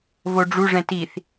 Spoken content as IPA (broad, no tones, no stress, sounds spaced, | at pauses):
v o ɖ͡ʐ u ʐ ɛ̃ t i θ